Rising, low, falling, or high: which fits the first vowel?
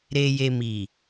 low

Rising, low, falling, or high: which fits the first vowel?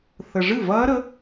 low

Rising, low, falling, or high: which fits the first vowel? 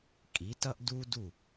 rising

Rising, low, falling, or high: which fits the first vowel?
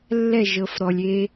falling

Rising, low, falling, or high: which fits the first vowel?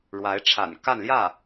rising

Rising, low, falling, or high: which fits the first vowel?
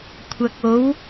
low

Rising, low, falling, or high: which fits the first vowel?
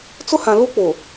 high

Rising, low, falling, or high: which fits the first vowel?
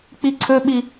high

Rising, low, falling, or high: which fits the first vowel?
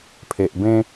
low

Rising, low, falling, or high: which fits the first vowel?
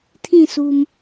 falling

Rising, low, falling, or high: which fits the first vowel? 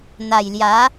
low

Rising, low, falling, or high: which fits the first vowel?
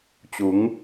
rising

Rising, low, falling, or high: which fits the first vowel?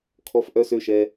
low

